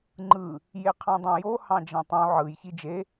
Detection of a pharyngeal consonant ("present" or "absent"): present